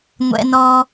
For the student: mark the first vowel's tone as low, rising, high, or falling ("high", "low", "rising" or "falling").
high